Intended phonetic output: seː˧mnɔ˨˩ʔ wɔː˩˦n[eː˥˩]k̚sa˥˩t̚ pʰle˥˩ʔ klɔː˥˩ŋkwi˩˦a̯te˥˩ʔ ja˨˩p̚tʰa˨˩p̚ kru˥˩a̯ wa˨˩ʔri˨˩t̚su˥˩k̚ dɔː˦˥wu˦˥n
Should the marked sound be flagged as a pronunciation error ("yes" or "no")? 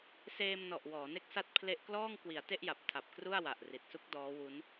yes